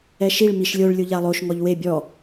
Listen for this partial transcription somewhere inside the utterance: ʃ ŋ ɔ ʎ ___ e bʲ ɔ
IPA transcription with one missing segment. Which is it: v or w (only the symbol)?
w